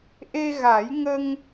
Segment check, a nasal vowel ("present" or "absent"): absent